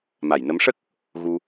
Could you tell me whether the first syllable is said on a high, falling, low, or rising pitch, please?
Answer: low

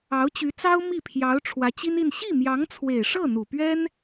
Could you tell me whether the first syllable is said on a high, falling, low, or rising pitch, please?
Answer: rising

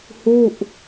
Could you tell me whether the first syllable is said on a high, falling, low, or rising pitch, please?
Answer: falling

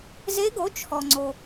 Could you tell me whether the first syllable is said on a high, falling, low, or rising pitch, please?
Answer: rising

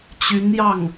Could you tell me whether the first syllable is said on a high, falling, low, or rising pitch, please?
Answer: rising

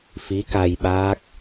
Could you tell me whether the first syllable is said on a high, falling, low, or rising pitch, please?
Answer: rising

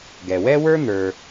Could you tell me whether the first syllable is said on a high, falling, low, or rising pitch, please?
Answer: low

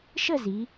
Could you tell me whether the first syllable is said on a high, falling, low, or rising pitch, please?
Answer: falling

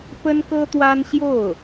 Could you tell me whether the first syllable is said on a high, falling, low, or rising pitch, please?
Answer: high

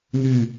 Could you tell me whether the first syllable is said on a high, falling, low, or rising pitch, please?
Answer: falling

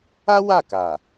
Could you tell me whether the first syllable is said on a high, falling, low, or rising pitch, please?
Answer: high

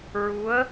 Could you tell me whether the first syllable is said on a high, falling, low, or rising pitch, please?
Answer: rising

